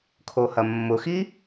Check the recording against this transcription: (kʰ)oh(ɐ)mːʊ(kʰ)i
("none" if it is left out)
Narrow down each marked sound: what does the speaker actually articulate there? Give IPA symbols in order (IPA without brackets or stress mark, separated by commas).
kʰ, ɐ, x